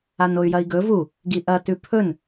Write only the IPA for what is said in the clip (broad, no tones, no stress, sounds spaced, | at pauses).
a n o y̯ j ɐ i̯ ɡ ɵ v u | ɡ i ʔ ɐ t ʉ pʰ ɵ n